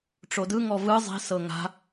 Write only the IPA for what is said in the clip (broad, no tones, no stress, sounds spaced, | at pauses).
ʈ͡ʂ o d ɯ ŋ ɔ v ɯ zˤ i̤ s ɤ ŋ a̤